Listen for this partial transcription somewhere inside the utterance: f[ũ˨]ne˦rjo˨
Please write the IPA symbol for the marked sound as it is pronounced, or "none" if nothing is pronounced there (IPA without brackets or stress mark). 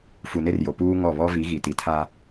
u˨